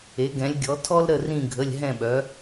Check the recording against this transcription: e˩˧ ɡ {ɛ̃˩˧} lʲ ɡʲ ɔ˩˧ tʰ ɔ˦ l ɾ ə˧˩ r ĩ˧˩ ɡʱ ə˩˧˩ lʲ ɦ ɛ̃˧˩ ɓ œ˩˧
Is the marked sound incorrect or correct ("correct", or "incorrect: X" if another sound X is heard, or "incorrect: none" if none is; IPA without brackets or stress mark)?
correct